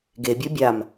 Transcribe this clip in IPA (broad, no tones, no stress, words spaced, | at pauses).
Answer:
ɡebʲo bʲam